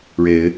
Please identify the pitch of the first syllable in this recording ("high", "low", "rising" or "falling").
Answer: rising